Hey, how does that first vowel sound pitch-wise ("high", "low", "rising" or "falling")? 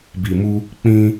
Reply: low